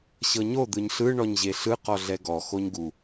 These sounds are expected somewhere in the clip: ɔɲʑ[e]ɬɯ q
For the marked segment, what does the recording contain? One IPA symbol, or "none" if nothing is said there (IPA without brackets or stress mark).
e